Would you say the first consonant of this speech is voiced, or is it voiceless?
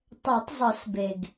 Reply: voiceless